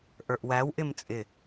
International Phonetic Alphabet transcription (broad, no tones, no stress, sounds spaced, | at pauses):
ʔ ə˞ ʔ w æ w ʔ ɪ m t͡sʼ ɪ